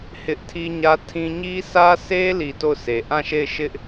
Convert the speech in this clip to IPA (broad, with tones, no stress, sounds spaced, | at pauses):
h ɪ˦ ʔ tʰ i˦ ɲ ä˦ tʰ ĩ˦ ɲ i˦ sʰ ä˦ sʰ e˦ l i˨ t o˦˨ ʊ̯ sʰ e˨ ʔ ã˦˨ ʃ e˦˨ ɪ̯ ʃ ɪ˦ ʔ